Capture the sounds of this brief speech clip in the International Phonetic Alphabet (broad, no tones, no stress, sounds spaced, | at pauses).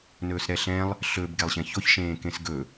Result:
n ɵː s ɾ ɛ ɬ ɛ̃ lˠ | ɬ ɵ b ɡ ɛ lˠ ɕ ɛ̃ ç o ç ʃ ẽː k ẽ s ɡ ɵ